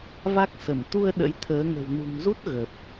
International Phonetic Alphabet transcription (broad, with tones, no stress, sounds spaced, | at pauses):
v a˦˥ k̚ s ə˧˩ m t̪ u˧ ə̯ ɗ ə̰˧˥ j t̪ʰ əː˨˦ ŋ ə̤˨˩ w n ṳ˨˩ ŋ z u˦˥ t̚ ɣ ə˨˩ p̚